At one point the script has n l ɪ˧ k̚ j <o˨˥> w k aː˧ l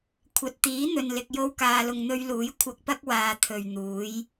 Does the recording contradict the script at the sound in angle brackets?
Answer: yes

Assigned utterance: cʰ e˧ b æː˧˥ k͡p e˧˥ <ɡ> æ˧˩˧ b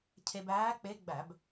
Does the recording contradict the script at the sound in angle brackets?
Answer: yes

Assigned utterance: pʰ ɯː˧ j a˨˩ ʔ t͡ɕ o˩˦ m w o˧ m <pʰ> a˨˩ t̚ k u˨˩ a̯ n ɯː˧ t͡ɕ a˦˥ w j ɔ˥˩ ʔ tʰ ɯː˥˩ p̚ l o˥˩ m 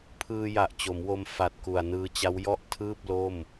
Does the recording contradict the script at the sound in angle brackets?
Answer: yes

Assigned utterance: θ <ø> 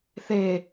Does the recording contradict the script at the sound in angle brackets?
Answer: yes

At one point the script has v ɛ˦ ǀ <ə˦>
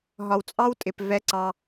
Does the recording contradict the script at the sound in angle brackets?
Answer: yes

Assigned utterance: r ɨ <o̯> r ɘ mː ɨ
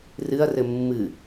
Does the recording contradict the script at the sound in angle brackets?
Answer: yes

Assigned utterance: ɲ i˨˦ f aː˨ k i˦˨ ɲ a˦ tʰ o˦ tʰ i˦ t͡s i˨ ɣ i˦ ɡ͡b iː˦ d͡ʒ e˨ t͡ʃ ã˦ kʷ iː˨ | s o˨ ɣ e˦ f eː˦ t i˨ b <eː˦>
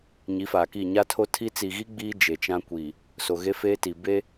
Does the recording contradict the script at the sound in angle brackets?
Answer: yes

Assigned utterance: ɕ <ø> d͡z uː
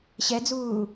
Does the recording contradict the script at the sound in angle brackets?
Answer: yes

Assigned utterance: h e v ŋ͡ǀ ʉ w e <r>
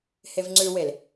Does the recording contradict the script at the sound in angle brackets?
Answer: yes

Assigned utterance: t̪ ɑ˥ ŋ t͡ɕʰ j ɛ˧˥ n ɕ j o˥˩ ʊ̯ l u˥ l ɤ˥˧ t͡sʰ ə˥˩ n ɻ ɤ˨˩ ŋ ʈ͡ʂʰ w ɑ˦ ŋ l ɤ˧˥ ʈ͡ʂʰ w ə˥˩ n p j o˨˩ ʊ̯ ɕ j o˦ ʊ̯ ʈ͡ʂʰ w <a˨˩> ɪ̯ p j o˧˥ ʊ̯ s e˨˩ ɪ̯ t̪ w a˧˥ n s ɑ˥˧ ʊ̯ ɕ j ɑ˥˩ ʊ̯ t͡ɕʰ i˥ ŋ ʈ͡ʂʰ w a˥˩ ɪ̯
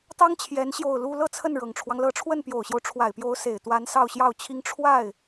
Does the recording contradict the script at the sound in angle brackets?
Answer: no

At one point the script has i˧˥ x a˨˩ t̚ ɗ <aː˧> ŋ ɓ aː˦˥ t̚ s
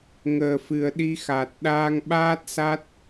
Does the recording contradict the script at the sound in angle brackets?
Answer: no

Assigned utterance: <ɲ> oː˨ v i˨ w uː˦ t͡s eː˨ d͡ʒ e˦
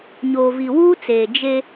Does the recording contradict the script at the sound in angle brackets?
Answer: no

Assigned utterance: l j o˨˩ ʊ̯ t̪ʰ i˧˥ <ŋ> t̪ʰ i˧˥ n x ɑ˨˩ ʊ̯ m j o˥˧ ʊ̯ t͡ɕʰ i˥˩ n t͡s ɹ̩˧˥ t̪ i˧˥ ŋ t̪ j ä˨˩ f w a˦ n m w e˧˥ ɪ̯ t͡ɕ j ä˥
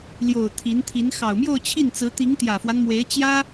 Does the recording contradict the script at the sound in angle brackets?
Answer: yes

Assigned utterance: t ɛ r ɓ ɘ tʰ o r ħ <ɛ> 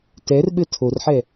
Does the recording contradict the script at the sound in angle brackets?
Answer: no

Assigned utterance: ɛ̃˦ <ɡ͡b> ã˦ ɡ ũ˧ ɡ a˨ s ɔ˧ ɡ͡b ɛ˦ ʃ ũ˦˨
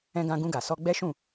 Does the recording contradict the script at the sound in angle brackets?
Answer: yes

